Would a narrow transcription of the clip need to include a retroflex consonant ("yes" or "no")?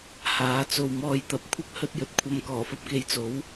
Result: no